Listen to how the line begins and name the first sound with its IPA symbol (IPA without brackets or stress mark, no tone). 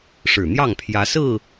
ʂ